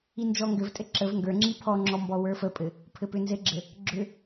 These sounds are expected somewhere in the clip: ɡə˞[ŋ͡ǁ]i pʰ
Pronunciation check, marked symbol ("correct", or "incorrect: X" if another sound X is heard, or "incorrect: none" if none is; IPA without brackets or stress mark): correct